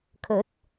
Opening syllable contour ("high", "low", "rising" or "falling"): rising